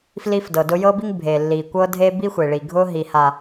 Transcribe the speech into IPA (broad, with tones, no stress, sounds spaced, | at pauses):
f l i˦ f d ɤ˨ d ʊ˦ j ɤ˦ b i˦ ŋ bʱ e˨ lː i˨ kʷ ɤ˦ dʱ e˦ b i˦ xʷ e˨ ɭ i˨ ɡʱ ʊ˦ ɦ i˨ h a˨